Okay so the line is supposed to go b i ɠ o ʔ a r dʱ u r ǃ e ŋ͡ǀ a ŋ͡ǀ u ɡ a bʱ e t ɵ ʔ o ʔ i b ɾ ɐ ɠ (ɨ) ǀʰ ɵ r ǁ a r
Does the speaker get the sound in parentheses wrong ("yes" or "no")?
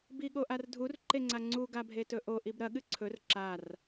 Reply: no